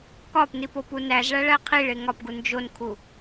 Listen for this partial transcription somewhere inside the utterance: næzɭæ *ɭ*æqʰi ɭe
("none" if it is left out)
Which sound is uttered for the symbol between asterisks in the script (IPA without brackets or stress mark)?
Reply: ɭ